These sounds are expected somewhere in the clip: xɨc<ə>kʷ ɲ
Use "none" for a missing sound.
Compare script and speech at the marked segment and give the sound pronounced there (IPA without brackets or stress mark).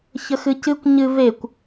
ɨ